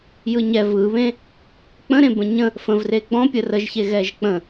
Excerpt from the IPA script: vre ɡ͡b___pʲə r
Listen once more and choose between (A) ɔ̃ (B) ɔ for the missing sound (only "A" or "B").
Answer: A